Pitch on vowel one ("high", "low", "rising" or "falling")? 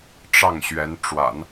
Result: falling